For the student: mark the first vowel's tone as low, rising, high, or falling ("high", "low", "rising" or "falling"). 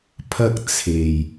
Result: high